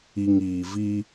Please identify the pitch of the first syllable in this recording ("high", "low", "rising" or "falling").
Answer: low